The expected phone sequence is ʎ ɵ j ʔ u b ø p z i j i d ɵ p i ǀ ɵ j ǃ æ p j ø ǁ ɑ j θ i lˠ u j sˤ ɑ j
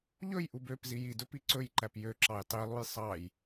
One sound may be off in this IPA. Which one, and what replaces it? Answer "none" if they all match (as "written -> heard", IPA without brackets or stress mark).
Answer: θ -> tˤ